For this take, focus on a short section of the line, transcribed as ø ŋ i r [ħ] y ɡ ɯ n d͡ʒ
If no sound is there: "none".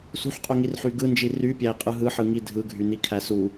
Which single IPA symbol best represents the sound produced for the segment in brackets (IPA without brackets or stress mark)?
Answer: ħ